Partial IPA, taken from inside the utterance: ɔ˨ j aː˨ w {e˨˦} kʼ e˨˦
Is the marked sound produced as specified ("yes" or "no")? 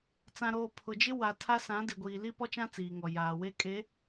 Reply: no